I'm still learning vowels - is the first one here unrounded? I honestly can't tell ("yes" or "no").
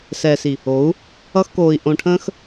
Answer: yes